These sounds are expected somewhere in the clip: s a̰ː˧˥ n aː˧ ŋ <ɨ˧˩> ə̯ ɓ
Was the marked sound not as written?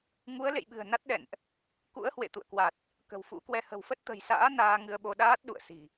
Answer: yes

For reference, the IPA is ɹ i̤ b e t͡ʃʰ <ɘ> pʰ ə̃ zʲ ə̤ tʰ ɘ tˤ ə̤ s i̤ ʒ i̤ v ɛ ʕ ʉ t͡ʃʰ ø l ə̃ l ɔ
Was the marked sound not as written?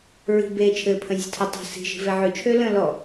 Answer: no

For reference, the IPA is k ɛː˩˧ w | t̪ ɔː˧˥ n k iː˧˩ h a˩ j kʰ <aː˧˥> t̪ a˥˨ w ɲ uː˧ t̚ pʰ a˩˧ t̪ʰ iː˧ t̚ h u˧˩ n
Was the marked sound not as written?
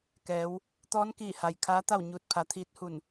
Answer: no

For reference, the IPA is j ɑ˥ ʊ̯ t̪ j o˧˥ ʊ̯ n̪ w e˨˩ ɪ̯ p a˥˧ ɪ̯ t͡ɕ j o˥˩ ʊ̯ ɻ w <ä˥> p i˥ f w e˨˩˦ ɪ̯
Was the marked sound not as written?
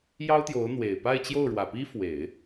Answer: yes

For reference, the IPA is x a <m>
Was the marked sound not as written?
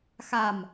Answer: no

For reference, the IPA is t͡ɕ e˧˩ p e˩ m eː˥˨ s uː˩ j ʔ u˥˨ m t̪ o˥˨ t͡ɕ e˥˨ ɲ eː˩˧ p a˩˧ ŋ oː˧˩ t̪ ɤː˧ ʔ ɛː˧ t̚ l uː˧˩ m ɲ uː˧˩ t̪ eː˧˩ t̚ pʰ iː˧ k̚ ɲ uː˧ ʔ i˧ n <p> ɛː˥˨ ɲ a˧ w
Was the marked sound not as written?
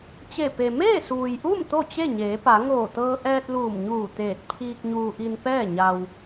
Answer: no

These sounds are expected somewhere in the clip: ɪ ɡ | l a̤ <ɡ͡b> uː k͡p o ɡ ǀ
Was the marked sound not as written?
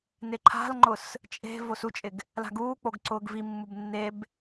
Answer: yes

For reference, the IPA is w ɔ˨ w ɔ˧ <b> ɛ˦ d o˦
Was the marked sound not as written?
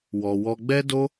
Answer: yes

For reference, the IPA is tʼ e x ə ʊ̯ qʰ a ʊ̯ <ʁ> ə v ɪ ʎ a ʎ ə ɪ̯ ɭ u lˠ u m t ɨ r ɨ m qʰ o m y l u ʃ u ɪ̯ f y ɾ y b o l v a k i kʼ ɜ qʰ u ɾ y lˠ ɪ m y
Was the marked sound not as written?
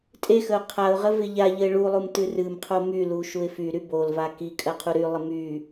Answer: no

